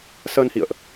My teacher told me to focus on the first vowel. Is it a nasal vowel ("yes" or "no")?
no